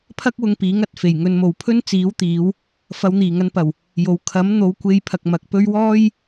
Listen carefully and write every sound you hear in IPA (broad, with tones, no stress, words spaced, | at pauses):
pʰɐ˥k̚wʊ˧ŋ piː˨˥ŋɐ˨˥t̚fe˨˩j ŋɵ˧nmo˨w pʰɵ˥n t͡siː˨˥wt̪iː˨˧w | fɐ˨˧wn̪iː˨˩ŋɐ˧npɐ˨˩w | jo˨˧w kʰɐ˨˥m n̪o˨˥wkʷe˧jpʰɐ˨k̚ mɐ˨k̚pɵ˥ɥ wɔː˥j